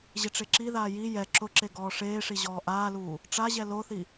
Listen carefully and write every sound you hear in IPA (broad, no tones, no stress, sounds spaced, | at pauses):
ʑ ɪ ʈ͡ʂ e ǁ i ð aː j i j ɛ ǁ ʊ ǁ e ɡ ɔː ʂ eː ʂ i ʑ ɔː ʔ aː l uː | ʈ͡ʂ a ʑ ɛ l o θ i